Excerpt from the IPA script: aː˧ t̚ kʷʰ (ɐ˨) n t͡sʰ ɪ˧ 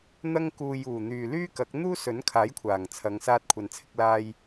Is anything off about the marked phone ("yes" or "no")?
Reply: no